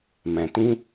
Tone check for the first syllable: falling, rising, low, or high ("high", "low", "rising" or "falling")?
low